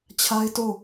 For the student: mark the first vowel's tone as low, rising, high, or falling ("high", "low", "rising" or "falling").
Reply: high